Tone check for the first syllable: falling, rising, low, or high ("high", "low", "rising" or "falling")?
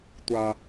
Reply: high